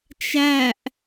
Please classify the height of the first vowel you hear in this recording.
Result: low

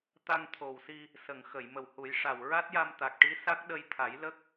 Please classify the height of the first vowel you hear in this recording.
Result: low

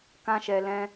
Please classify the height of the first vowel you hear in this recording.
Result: low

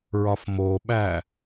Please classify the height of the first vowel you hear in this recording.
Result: low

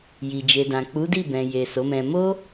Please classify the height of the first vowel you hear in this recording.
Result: high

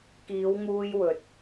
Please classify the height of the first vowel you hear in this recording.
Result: high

